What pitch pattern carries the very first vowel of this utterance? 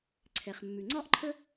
low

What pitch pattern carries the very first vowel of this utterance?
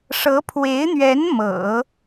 rising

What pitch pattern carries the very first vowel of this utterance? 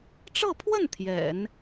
falling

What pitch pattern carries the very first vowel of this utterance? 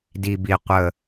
low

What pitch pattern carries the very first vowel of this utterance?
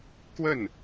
falling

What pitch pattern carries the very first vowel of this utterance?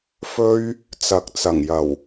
high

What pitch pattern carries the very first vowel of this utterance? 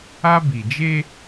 high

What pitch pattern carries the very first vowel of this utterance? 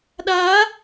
rising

